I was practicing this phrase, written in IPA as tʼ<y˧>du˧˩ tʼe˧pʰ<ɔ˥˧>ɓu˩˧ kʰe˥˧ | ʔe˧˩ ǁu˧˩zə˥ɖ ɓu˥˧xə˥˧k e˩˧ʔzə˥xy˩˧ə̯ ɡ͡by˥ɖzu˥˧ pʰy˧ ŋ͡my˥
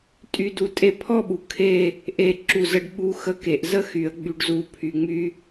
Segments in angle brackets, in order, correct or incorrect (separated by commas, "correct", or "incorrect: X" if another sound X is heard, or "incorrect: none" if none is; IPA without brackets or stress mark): correct, correct